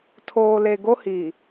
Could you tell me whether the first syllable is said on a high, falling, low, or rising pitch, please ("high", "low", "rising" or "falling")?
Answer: low